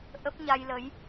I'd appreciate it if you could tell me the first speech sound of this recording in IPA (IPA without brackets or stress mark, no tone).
ʔ